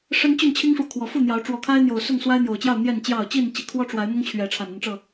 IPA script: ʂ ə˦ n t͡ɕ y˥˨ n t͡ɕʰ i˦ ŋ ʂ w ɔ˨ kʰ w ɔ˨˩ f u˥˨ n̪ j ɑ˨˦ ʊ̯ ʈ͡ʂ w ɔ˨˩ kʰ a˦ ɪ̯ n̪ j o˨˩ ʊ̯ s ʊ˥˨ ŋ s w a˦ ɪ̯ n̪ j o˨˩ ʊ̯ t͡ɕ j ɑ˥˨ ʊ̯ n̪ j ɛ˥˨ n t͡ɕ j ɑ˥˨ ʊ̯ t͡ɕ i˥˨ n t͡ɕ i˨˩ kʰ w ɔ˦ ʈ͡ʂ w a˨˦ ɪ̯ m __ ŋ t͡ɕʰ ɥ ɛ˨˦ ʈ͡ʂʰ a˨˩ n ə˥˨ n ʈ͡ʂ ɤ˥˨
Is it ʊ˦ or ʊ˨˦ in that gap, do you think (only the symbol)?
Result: ʊ˦